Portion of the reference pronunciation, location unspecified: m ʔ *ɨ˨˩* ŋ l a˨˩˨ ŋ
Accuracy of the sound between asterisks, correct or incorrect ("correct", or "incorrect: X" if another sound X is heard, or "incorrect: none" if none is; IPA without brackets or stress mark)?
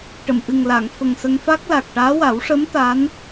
correct